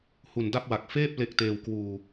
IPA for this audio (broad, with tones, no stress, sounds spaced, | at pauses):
h u˨˩ n d a˥˩ p̚ w a˨˩ k̚ f eː˥˩ p̚ l e˦˥ k̚ t eː˧ w k w uː˧